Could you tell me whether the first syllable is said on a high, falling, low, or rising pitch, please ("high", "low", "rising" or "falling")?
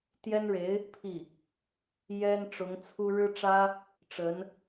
high